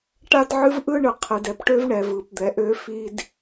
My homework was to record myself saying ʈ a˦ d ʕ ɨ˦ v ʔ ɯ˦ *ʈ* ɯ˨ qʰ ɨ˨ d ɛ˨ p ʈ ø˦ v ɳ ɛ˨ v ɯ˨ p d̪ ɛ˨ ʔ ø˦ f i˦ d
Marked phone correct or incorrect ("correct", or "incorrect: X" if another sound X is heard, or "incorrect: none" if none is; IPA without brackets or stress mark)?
incorrect: ɳ